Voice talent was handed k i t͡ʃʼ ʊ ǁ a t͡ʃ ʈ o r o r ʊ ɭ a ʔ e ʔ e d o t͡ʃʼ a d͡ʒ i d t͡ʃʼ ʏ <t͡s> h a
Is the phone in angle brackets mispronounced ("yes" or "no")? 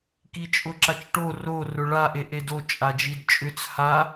no